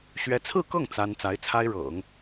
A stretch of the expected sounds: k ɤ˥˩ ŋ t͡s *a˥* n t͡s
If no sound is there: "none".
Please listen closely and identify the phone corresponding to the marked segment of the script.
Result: a˥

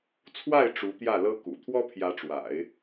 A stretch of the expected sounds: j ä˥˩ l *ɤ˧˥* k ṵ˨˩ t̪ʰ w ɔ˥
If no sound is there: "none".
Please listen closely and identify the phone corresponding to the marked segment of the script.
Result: ɤ˥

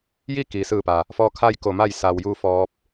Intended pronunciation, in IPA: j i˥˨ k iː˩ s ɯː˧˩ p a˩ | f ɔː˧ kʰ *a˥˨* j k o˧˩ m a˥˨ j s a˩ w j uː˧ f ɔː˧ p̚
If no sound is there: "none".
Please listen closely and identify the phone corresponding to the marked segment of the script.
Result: a˥˨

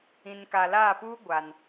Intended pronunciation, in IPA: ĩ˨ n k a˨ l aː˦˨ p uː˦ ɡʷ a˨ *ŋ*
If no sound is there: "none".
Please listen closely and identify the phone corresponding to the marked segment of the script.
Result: n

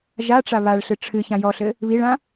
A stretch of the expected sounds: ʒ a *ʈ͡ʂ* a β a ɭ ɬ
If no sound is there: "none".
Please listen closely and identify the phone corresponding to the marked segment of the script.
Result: ʈ͡ʂ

